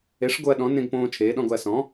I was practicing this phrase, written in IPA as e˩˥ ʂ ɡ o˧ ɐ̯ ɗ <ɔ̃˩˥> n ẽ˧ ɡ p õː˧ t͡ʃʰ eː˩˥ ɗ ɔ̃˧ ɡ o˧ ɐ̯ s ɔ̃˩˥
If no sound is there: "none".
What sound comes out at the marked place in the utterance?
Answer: ɔ̃˩˥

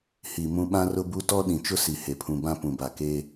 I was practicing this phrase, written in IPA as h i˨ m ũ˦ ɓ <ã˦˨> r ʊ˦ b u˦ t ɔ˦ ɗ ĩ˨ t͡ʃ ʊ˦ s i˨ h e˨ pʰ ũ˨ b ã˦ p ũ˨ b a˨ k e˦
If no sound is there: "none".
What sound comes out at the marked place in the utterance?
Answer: ã˦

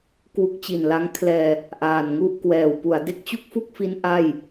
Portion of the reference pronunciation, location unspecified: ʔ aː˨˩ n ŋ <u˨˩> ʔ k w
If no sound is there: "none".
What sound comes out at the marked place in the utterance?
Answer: u˥˩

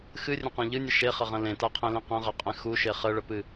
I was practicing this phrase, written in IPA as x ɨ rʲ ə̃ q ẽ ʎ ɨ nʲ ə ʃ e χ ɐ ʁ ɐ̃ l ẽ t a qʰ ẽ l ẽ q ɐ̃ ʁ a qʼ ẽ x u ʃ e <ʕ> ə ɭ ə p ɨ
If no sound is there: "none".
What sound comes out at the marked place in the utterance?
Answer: χ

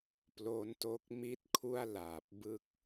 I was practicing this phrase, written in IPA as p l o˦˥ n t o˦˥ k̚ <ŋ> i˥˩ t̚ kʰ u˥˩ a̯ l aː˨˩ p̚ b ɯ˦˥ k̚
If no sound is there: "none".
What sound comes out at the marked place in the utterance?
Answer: m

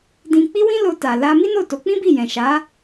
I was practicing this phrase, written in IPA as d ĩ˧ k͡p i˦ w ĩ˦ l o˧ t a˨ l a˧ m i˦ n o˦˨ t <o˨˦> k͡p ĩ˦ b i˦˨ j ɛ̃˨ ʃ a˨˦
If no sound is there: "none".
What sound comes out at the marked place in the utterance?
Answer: o˨˦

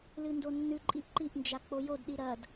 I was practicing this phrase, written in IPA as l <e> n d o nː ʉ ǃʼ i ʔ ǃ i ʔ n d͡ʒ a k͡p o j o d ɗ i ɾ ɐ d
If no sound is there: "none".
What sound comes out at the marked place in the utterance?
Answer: ɨ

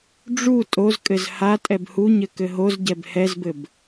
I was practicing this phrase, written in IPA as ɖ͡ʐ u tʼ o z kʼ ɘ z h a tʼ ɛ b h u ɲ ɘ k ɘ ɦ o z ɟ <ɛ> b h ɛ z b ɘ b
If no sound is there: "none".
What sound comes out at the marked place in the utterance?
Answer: ɛ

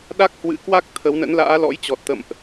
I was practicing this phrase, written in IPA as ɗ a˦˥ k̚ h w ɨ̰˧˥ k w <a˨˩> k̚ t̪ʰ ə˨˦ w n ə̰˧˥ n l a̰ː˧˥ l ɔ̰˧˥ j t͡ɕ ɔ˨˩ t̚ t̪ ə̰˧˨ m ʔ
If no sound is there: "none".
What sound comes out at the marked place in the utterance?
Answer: a˦˥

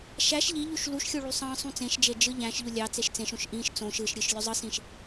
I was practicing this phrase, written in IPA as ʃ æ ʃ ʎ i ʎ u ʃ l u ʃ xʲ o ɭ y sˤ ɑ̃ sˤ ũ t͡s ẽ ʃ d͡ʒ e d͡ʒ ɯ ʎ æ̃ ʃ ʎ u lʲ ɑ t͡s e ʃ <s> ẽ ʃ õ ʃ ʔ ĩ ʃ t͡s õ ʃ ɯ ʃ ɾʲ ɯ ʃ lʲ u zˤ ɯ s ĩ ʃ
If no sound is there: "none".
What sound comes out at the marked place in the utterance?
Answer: t͡s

